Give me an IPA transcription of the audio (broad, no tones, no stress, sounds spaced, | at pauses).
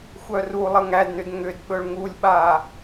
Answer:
xʷ œ r u lˠ ə ŋ æ d n ʏ d ŋ ʏ d ɓ ɵ ɭ ŋ u lʲ ɓ a